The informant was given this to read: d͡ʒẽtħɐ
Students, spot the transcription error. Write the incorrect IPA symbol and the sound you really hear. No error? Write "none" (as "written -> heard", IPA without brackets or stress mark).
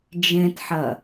none